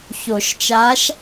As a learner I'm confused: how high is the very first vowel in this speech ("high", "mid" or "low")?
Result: mid